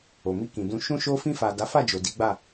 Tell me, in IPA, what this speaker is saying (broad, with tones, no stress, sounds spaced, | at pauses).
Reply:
o˨ m i˧ k ĩ˨ d ũ˧ ʃ ũ˧ ʃ o˧ f ĩ˧ f a˨ d a˨˦ f a˦˨ d͡ʒ o˨ d i˨˦ ɡ͡b a˦˨